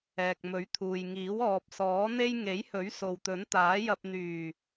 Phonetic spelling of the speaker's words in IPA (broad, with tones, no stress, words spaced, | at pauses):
ɛː˨k̚mɵ˨˥ɥt̪ʰuː˨jŋiː˨˥w ɔː˨p̚ sɔː˨˥n̪e˥j ŋe˨˥jhɵ˨˥ɥ so˨wt̪ɵ˨˥nt̪aː˨˥jɐ˧p̚ n̪yː˨˩